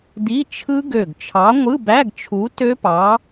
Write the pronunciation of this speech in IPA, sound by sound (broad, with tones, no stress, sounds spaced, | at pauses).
d i˧˥˧ t͡ʃʰ ɯ˦˥ ɡ ø˧˩ ɡ t͡ʃʰ ɑ˨˥ ŋʷ ɯ˧˥˧ b æ˧˥˧ ɡ t͡ʃʰ u˨˥ t ø˦˥ p ɑ˨˥